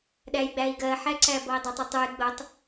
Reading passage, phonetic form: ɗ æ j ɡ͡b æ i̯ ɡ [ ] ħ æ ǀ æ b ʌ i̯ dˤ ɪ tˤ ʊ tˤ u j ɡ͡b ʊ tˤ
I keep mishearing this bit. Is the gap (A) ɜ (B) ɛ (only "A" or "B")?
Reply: A